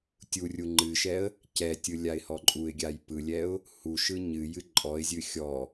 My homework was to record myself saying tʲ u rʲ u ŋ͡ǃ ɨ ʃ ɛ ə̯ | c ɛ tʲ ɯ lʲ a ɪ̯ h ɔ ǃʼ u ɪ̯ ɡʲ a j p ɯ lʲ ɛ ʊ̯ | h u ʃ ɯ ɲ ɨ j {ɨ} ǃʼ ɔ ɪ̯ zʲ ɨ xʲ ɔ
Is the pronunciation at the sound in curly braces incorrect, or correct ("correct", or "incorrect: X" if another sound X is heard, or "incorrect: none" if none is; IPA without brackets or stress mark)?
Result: correct